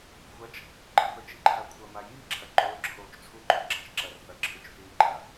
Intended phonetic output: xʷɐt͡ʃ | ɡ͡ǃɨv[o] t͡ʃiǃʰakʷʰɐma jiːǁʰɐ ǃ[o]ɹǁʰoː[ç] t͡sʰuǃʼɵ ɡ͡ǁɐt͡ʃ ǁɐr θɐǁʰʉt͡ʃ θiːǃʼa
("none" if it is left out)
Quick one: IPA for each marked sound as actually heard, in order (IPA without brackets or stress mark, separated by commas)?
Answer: ɵ, o, t͡ʃ